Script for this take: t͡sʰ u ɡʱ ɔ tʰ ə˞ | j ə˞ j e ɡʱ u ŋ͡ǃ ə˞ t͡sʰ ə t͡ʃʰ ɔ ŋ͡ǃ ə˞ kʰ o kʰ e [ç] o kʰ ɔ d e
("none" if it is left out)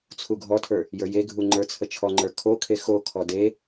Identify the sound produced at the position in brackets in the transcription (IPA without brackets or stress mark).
x